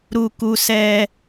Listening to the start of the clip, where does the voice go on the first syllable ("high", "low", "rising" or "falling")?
high